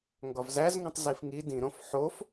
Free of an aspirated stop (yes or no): yes